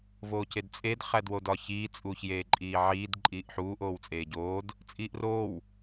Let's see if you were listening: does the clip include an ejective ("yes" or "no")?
yes